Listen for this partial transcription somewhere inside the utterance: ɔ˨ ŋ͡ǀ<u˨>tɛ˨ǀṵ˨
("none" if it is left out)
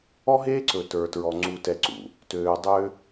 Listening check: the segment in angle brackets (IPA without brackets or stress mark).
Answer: u˨